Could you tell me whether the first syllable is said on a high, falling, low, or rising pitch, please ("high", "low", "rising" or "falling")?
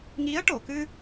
rising